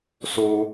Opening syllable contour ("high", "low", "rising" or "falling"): high